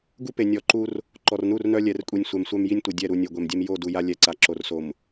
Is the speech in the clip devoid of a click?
no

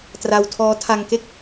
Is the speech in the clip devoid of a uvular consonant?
yes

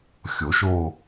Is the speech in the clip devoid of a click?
yes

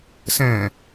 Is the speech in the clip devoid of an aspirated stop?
yes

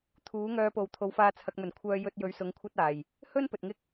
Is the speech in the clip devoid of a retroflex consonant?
yes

